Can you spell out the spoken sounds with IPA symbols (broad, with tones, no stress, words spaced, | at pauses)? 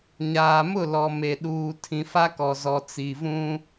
ɲaː˨mʊ˦˨ lɔ˨ me˨ɗuː˨ tʰĩ˨fa˦kɔ˨ zɔ˨t͡si˨vũ˦